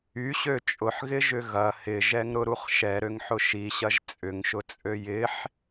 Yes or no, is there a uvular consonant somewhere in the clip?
yes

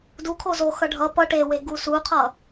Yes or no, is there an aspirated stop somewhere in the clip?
yes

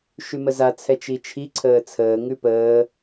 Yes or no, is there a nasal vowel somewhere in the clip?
no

